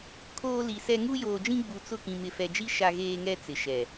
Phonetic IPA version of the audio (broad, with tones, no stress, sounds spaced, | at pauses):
kʰ oː˦ l i˨ s ɛ˦ ŋ u˦ j oː˨ d͡ʒ ĩ˦ ɡ͡b u˨ t͡s ʊ˦˨ k ĩ˨ m ɪ˨ f ɛ˨ d͡ʒ i˦ ʃ a˦ ɣ eː˦ ŋ ɛ˦ t͡s ɪ˨ ʃ ɛ˨